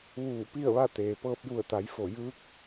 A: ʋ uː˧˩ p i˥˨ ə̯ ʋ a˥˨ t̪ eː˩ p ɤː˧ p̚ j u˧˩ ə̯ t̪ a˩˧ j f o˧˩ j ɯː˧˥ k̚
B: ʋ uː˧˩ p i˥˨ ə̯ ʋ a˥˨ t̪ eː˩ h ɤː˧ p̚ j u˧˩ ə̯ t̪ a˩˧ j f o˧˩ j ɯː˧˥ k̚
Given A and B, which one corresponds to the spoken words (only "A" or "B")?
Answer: A